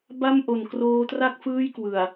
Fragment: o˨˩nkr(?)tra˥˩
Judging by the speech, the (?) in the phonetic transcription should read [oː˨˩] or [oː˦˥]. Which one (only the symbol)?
oː˦˥